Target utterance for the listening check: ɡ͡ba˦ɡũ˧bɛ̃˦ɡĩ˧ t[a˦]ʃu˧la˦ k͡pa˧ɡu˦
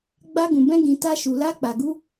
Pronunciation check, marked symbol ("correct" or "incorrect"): correct